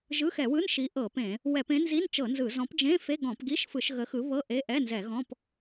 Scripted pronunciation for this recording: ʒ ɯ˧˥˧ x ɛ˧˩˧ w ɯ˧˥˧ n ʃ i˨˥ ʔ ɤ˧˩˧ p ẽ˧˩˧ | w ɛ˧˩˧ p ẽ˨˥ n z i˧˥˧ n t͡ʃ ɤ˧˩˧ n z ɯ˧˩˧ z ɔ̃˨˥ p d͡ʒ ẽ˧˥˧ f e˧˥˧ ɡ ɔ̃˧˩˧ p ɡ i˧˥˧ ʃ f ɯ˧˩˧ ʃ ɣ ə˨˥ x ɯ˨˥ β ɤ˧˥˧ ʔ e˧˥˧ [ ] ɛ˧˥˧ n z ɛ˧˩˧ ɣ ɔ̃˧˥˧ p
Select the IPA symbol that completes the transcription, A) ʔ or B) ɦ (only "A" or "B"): A